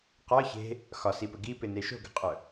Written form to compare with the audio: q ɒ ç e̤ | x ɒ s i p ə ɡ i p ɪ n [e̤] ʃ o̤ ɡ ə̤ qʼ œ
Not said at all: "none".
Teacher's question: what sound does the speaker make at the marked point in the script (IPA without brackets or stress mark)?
e